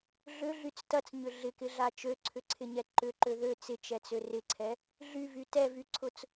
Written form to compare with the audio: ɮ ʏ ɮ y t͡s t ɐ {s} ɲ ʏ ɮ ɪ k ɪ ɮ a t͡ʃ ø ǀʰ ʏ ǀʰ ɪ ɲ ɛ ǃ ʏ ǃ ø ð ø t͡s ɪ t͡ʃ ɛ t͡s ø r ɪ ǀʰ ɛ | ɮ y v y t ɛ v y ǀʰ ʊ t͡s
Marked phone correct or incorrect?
incorrect